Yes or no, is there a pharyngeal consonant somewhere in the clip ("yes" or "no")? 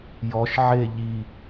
yes